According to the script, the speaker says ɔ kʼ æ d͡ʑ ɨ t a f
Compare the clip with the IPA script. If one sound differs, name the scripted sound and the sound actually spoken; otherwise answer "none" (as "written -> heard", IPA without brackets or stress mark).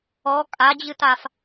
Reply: æ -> a